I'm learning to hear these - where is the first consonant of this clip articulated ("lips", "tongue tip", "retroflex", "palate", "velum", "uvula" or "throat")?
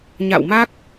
palate